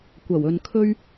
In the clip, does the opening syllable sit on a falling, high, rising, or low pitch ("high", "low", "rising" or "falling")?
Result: low